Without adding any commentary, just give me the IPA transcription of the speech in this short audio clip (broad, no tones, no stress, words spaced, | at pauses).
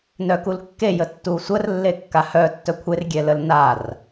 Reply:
nœkulkːe jətːuːsʷər lːekːahœ tːœkʷʰer ɡʲɛləlnar